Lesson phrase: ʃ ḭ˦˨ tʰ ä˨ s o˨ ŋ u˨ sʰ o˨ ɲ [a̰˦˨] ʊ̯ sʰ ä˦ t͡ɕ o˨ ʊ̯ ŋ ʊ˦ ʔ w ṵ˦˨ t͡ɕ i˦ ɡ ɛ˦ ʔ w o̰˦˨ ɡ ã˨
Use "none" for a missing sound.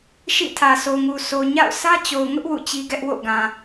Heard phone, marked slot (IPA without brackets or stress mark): a̰˦˨